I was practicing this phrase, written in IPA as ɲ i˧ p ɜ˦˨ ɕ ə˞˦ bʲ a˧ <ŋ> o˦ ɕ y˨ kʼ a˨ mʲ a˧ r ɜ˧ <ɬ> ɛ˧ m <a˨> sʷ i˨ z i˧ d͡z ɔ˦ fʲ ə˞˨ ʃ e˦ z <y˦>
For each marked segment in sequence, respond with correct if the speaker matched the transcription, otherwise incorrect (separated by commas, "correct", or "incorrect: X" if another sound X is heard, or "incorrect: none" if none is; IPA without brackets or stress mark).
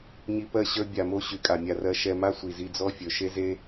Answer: incorrect: m, incorrect: ʃ, incorrect: a˦, incorrect: e˦